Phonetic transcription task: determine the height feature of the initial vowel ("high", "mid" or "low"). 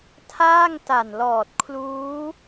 low